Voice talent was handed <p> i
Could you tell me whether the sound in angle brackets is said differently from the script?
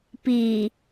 no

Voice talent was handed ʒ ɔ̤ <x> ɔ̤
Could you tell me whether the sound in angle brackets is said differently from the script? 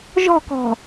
yes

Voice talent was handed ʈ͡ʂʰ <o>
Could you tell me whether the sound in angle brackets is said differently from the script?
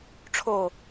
no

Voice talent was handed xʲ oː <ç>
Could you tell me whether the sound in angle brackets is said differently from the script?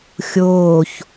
no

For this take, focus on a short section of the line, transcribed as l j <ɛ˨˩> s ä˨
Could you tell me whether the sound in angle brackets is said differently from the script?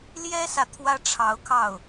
yes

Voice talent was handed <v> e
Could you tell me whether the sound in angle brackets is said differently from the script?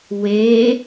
yes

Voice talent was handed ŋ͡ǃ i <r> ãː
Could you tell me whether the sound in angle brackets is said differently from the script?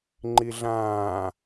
yes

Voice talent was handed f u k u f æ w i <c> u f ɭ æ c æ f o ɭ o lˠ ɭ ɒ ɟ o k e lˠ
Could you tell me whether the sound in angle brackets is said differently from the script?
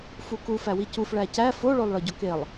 no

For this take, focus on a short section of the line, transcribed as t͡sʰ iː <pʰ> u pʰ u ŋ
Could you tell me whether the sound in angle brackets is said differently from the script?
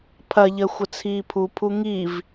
no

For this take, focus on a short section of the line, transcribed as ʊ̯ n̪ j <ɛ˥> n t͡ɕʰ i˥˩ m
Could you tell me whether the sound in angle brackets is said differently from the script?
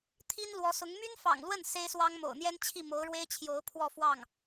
no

